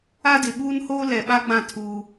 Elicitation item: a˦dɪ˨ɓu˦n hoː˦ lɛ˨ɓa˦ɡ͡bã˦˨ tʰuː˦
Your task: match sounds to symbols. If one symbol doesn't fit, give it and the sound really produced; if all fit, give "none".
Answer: u˦ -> uː˦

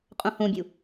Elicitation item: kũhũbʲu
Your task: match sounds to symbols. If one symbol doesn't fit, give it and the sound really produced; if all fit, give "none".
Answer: k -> qʼ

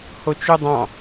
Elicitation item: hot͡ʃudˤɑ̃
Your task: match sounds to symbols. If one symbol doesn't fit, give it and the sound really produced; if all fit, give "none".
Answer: none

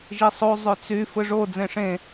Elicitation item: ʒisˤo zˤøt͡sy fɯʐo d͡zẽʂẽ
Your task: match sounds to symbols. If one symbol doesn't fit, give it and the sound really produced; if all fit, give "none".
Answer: none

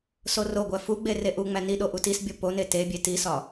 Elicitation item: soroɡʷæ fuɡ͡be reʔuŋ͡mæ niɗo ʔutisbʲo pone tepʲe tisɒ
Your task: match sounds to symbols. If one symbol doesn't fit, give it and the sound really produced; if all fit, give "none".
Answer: pʲ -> bʲ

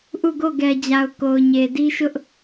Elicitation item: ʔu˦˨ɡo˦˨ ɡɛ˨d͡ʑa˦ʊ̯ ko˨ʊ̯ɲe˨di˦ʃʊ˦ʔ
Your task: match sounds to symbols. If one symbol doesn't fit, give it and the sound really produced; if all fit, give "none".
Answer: a˦ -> a˨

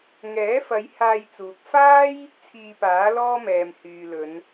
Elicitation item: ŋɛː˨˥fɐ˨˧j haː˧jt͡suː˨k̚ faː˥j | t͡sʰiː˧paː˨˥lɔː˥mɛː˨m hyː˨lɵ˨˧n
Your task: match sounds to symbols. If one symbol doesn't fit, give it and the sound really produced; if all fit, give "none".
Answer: none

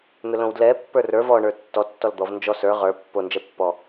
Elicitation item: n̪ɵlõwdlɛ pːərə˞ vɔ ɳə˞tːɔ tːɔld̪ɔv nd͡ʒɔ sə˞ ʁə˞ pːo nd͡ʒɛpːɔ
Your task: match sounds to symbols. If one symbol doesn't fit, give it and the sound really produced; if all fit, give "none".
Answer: ə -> ə˞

